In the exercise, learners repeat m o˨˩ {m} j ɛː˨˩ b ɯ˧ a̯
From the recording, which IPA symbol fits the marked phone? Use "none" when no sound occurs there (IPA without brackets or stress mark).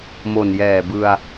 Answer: n